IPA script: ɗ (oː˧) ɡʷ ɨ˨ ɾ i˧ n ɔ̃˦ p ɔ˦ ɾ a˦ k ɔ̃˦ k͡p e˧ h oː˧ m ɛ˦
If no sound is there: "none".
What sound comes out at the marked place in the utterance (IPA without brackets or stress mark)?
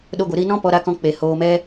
o˧